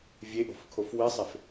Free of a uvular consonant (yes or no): yes